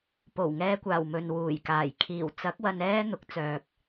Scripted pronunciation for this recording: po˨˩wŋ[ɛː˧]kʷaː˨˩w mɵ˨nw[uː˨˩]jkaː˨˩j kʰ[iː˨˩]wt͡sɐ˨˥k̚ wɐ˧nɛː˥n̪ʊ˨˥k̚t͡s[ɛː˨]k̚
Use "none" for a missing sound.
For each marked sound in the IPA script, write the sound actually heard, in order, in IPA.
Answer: ɛː˧, uː˨˩, iː˨˩, œː˨

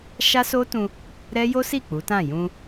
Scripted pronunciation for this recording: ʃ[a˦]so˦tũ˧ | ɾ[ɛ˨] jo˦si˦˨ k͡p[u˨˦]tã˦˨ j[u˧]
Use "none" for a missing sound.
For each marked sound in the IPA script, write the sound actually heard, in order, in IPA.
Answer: a˦, ɛ˦, u˨˦, ũ˧

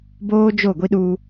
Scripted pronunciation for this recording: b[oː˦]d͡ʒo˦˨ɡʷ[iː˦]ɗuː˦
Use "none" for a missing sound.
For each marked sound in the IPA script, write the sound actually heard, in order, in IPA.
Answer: oː˦, i˦

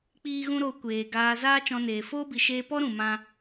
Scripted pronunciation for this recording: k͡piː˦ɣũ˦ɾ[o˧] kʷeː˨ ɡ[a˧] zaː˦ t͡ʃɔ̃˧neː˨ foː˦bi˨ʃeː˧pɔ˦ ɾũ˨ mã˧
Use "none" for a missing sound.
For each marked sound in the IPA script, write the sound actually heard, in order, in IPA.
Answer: o˧, aː˧

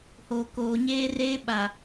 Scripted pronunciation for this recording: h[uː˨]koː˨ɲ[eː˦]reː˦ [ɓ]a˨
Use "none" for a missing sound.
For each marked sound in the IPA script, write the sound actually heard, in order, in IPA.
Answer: oː˨, eː˦, ɓ

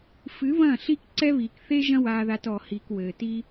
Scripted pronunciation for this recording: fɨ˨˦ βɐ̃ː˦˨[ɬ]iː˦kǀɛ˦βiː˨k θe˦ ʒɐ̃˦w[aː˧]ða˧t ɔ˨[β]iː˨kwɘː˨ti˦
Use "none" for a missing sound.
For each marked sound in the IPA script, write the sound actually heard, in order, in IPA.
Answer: ɬ, aː˧, h

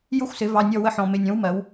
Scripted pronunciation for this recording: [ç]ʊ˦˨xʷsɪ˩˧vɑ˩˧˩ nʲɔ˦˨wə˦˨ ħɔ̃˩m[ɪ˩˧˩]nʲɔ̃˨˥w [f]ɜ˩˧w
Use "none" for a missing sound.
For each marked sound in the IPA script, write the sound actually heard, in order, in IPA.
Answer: j, ɪ˩˧˩, m

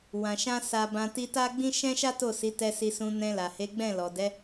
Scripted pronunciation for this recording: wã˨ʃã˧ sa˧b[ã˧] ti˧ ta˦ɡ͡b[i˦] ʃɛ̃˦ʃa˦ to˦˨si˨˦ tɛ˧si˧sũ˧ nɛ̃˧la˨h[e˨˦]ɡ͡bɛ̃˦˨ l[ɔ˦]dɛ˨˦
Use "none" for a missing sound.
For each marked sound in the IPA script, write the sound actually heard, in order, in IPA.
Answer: ã˧, ĩ˦, e˨˦, ɔ˨

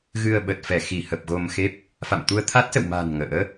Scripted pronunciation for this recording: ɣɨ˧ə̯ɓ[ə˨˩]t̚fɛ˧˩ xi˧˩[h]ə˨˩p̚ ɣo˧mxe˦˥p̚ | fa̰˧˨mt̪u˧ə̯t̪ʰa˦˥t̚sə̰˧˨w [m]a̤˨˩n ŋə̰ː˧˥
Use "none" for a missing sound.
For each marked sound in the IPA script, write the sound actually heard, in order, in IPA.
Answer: ə˨˩, h, m

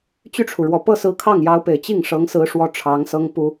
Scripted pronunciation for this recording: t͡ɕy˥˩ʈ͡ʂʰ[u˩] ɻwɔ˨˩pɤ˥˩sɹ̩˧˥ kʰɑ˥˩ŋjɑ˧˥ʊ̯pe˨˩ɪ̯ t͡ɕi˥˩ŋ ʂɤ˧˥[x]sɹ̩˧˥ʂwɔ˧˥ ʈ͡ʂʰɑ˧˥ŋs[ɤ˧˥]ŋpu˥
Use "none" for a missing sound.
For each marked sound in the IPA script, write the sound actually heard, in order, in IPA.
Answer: u˩, ŋ, ɤ˥

